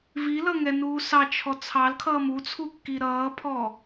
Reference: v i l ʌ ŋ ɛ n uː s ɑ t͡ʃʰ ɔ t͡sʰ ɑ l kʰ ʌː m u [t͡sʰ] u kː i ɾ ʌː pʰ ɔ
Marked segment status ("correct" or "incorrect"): correct